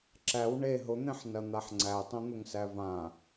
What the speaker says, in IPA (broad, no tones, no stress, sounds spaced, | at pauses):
ǁ æ w ɳ e ɦ ʊ n̪ ẽ ħ n ɐ n̪ a ħ ŋ͡ǀ æ tˤ õ n̪ ʊ ŋ s æ v ã